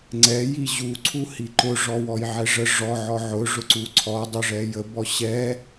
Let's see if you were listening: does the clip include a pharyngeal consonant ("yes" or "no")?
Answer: yes